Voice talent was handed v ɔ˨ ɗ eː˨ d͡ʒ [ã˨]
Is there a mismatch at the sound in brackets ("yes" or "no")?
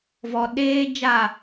yes